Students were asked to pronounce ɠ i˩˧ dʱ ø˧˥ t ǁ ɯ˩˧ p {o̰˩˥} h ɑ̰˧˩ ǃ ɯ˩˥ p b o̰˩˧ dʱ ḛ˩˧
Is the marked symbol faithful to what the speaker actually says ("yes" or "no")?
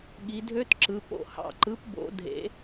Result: no